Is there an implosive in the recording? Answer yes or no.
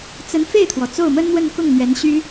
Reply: no